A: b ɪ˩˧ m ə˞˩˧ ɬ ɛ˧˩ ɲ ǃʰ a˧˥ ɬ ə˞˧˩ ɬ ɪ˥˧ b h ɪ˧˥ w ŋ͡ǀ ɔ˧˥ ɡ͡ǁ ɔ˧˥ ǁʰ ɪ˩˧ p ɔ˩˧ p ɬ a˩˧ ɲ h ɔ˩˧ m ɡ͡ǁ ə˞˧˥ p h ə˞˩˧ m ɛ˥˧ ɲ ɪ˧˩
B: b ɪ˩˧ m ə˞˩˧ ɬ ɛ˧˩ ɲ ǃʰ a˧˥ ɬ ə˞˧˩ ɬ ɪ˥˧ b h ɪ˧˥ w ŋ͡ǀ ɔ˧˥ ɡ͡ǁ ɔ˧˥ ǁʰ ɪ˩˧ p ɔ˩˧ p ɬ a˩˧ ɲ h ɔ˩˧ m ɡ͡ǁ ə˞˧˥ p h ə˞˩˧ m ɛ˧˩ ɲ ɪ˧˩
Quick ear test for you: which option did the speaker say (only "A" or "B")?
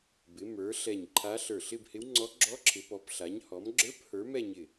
A